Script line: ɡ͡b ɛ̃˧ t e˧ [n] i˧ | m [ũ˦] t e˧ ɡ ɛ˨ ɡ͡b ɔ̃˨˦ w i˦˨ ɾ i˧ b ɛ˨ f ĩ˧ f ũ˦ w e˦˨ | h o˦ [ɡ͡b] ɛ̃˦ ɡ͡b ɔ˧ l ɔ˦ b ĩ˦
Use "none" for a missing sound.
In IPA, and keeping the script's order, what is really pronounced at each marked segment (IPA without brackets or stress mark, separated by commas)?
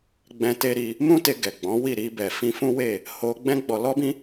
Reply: ɾ, ũ˦, ɡ͡b